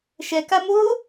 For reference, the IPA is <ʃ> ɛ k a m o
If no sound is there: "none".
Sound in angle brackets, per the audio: ʃ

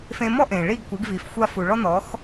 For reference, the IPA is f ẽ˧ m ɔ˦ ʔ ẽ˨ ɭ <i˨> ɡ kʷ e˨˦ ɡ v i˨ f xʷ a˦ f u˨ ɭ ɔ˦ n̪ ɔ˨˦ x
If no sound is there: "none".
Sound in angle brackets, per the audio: i˦˨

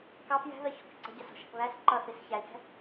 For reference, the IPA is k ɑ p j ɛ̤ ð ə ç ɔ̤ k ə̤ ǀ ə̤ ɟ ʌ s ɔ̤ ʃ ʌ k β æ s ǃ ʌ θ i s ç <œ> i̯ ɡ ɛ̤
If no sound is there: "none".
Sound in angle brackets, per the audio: æ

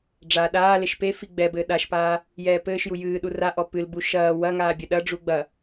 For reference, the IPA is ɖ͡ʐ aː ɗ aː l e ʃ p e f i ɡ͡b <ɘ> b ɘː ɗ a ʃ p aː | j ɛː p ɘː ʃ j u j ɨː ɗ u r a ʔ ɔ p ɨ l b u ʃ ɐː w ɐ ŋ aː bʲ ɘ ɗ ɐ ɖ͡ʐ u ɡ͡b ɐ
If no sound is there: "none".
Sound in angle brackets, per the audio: ɛ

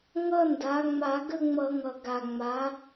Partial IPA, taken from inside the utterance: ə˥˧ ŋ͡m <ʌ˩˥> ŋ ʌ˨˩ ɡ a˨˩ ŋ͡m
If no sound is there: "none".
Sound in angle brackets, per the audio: ʌ˧˩˧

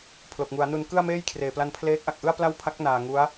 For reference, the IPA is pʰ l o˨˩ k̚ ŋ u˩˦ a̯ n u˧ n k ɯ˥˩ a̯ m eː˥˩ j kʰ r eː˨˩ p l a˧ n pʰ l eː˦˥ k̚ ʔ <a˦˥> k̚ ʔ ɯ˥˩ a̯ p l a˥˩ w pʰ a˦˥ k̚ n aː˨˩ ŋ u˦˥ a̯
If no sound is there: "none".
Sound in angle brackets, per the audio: a˨˩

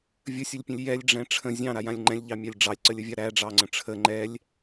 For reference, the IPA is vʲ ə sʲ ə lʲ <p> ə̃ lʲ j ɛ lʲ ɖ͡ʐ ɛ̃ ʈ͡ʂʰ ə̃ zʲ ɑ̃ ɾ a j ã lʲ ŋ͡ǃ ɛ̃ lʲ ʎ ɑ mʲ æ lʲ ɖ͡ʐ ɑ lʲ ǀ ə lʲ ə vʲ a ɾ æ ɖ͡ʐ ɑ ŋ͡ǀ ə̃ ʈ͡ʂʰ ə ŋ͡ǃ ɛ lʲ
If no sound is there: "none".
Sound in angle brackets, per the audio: pʲ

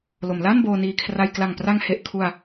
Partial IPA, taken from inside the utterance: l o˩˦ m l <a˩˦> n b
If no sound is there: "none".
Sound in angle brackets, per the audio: a˥˩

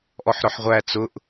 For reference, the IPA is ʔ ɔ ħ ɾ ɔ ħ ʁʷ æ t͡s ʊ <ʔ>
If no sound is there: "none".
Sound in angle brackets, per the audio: ʔ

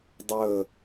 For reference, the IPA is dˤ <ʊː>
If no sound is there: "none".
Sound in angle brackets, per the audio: əː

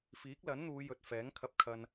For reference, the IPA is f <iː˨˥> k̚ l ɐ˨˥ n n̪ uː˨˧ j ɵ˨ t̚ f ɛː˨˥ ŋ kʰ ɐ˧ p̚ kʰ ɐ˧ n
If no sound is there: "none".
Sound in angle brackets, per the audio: iː˨˥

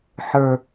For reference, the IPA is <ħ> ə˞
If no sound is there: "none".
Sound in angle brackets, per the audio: ħ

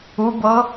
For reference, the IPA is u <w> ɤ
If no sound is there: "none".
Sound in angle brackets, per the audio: b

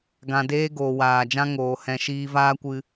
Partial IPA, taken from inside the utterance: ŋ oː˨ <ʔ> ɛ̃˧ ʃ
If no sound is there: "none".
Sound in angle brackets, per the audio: h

